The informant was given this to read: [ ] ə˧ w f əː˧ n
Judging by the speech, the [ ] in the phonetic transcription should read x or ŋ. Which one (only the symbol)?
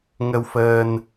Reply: ŋ